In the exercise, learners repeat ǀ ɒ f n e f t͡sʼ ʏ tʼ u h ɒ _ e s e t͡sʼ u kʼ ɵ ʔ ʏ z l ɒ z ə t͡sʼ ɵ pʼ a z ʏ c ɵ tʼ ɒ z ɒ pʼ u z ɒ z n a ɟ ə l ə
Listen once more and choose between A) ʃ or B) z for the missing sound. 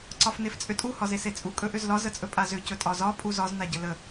B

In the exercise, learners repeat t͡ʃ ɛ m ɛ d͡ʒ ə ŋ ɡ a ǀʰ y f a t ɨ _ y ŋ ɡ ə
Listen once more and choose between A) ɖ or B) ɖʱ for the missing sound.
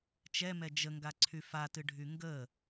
B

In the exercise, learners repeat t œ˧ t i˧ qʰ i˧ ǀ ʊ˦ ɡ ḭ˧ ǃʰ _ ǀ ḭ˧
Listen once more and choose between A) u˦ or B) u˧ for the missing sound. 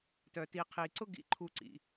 B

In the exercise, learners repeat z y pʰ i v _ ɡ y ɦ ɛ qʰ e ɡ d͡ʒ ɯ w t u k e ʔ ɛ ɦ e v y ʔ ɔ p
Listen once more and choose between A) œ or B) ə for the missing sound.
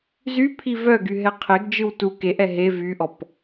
A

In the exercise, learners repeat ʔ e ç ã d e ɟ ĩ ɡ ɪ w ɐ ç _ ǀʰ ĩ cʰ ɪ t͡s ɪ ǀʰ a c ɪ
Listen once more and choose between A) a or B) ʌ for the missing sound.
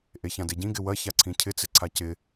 A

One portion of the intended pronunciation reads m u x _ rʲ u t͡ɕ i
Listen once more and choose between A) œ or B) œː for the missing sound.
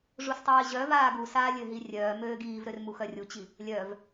A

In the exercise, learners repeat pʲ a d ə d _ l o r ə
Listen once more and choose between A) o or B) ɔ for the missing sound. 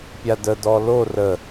B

